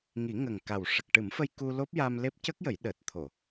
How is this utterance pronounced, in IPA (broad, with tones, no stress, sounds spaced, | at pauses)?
ŋ i˨˩˦ ŋ ə˨˩ ŋ k a˨˩ w ʂ ə˨˩ k̚ ʈ ɨ˨˩˦ m f ə˧ j k u˧ l o˦˥ p̚ j a˧ m l e˦˥ p̚ c ə˦˥ k̚ j ə˨˩˦ j ɗ əː˨˩ t̚ t̪ʰ o˨˩˨